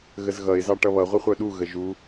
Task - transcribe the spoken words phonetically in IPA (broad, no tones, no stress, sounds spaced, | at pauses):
ɣ ə z ɣ ʌ ɪ̯ z ɑ ʈ ʌ β ʌ ʁʷ ə χʷ œ ɗ u ɣ ə ʒ u